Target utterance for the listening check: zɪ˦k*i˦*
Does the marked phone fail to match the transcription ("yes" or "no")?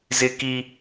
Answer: no